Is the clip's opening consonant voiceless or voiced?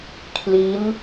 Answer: voiceless